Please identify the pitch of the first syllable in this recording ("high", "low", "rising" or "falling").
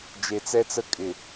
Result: low